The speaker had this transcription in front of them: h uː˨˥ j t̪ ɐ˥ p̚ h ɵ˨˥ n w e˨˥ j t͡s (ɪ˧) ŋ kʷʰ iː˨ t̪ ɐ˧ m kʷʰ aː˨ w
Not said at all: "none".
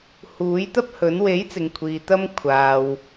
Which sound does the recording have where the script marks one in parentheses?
ɪ˨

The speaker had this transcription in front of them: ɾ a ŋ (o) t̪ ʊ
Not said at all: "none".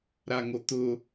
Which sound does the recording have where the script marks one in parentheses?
o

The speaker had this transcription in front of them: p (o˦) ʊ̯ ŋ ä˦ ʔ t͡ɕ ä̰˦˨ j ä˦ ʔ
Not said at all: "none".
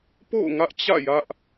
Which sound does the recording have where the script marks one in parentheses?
o̰˦˨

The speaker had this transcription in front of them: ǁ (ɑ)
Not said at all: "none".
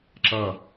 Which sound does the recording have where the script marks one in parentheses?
ʌ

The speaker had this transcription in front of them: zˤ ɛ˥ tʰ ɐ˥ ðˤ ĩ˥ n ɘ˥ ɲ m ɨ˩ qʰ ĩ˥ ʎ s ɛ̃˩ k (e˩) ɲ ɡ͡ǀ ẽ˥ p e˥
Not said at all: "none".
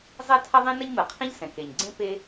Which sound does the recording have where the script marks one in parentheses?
e˩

